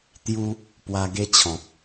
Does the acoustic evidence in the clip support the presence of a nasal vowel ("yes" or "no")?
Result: yes